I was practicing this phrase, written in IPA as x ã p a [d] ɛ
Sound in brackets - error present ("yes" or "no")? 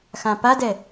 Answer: no